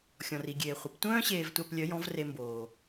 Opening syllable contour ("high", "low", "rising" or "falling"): low